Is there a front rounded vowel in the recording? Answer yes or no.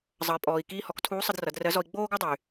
yes